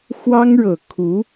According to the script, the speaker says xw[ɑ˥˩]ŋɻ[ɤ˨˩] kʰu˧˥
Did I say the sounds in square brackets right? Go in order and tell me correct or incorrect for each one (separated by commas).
incorrect, correct